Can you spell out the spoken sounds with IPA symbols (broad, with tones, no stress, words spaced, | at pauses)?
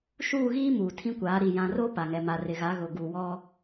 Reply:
ʃuː˦˨ɣiː˦ muː˨tʰĩ˦kʷaː˨˦ ɾi˨ jã˨ro˦ pa˨ŋɛ˨ ma˨rɪ˨ɣa˨˦ ɣʊ˨ ɡu˨wɔ˦